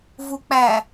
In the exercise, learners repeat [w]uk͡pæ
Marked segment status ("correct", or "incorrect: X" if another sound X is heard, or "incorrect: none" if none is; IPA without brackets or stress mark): incorrect: v